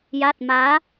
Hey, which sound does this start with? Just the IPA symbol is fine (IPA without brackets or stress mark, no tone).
j